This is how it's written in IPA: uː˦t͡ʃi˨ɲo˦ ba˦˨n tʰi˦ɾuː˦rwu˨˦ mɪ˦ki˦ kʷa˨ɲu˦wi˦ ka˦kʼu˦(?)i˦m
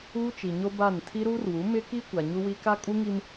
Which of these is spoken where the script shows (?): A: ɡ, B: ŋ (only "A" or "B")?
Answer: B